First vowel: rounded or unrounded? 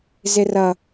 unrounded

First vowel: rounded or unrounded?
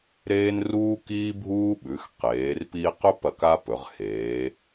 unrounded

